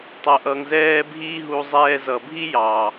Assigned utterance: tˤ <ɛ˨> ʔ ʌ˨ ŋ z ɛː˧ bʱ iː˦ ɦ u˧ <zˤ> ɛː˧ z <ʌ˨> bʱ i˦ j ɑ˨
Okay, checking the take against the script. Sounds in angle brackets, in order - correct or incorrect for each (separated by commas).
incorrect, correct, correct